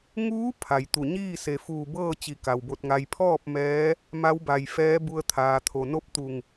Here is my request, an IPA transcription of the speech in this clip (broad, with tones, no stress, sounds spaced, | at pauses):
ŋ uː˧˥ pʰ a˩ j t̪ u˧˩ ɲ iː˥˨ s e˩ f uː˧˩ b ɤː˥˨ t͡ɕ i˧˩ k a˩ w b o˧ t̚ ŋ a˧ j pʰ ɔː˥˨ p̚ m ɛː˧˥ | m a˧˥ w b a˩ j f ɛː˧˥ b u˧ ə̯ t̪ʰ aː˩ t̪ʰ o˩ n o˥˨ p̚ t̪ u˧˩ ŋ